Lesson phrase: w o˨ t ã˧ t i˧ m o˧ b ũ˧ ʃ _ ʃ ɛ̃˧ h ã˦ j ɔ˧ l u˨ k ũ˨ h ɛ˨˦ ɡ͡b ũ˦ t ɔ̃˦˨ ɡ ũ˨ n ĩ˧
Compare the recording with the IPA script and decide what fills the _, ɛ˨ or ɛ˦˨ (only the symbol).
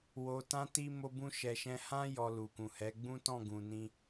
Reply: ɛ˨